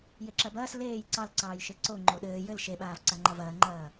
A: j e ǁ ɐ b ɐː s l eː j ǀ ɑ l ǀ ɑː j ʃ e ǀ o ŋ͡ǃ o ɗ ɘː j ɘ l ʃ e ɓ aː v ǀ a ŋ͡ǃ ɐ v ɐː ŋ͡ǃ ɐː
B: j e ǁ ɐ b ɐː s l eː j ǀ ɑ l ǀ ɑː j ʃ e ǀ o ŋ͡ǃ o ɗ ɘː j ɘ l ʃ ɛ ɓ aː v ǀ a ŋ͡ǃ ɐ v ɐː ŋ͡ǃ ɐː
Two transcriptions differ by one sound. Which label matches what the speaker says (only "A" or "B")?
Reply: A